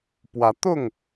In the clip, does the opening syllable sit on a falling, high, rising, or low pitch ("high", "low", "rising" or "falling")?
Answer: rising